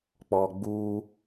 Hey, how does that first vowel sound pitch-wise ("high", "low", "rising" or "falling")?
low